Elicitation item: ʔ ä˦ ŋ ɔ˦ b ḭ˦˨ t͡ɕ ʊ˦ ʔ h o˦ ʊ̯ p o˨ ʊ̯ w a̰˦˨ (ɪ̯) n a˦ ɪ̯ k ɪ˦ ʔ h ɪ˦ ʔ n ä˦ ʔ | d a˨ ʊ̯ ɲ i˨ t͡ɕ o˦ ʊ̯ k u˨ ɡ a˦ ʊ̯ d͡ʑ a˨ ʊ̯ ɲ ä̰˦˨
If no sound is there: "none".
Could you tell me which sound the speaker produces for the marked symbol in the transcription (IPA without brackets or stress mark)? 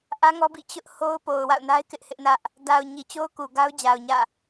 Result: ʊ̯